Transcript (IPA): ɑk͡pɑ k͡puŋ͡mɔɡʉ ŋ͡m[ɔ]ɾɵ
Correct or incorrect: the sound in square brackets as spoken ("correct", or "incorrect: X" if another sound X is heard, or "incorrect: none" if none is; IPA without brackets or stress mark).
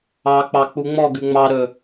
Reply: incorrect: ɑ